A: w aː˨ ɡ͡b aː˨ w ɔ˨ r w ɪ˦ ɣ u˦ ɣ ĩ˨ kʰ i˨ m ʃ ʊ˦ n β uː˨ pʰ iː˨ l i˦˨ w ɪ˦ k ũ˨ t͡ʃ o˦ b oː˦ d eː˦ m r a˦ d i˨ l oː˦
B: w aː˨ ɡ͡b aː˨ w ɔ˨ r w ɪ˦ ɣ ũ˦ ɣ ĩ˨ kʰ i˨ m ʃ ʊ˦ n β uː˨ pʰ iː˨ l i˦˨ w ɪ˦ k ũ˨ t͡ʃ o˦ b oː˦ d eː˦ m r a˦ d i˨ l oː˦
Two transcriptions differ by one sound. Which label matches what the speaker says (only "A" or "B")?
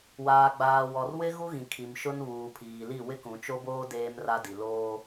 A